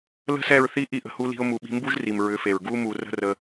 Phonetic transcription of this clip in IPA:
l ə̤˦ s ɛ˦˨ ɹ θ i˦ ʔ i˦ ʔ ə̤˧ h u˦ l i̤˦ ʊ̯ m u˧ ɓ i̤˧ m b u˦ ʒ r i˨ m ɹ ʏ˨˦ f e˨ ɹ ɡ u˧ m u˨ r ə̤˦ r ə˧

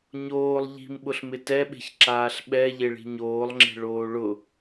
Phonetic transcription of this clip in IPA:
ɲ oː lˠ ʎ i̤ m ɓ ʊ ɬ m ɪ t ɛ ɓ e̤ ç ǁ aː ɬ ɓ ɛ ʎ e ɭ i̤ ɲ oː lˠ ŋ͡ǁ e̤ ɭ oː ɭ ʊ

